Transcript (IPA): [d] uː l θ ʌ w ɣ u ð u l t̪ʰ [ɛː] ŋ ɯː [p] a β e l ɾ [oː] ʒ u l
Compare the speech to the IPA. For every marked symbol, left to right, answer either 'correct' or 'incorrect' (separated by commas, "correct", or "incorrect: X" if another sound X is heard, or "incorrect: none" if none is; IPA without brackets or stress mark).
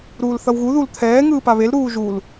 incorrect: ɾ, correct, correct, incorrect: uː